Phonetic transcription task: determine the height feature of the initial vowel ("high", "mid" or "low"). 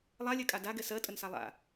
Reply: low